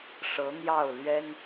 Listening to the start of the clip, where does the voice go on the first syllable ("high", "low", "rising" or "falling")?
rising